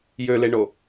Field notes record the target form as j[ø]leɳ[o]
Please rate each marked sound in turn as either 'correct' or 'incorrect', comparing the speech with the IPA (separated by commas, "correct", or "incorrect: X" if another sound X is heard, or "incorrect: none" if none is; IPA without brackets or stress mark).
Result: correct, correct